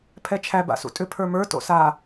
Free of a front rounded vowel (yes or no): no